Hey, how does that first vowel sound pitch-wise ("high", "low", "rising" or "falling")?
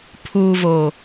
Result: low